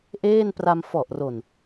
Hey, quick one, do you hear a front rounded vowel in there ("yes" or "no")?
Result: no